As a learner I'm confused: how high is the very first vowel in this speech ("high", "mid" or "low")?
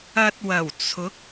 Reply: low